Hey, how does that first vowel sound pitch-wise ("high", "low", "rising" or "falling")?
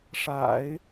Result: low